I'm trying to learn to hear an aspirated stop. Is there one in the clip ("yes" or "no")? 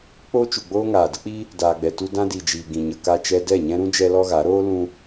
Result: no